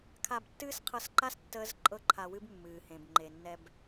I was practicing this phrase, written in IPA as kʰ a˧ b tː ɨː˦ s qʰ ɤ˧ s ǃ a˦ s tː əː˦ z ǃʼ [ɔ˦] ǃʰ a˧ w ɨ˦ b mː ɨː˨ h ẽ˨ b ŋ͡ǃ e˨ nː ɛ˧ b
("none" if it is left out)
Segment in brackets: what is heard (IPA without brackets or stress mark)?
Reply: ɤ˦